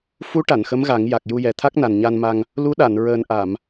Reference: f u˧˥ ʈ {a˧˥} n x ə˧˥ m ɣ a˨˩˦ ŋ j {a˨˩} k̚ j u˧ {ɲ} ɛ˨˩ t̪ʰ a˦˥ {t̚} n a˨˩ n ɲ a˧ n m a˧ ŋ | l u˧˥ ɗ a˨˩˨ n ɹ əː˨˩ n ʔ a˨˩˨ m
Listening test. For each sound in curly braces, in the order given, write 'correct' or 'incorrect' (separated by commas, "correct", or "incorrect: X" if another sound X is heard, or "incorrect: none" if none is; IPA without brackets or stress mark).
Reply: incorrect: a˨˩˨, correct, incorrect: j, incorrect: k̚